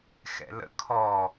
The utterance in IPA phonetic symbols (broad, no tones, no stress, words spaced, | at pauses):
xɛ̰lə̰ kʰɔ